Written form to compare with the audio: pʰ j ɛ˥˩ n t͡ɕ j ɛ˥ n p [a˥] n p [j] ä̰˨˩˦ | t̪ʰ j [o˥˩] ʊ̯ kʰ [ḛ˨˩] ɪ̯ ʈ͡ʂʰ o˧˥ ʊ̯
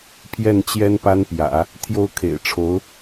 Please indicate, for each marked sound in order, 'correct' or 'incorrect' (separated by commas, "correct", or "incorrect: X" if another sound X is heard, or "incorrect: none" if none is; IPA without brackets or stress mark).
correct, correct, correct, correct